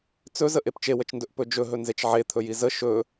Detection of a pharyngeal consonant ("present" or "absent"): present